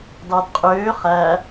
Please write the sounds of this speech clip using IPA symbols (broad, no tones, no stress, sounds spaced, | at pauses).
d ɑ d qʼ øː χ æ